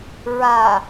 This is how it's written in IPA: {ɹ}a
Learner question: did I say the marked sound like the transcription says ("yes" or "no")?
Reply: yes